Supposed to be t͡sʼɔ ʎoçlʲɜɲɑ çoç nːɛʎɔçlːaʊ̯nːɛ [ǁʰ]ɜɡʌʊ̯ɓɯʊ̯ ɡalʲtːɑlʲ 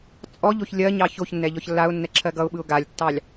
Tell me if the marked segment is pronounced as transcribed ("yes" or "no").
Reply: yes